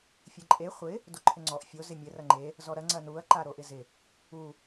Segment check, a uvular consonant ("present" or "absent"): present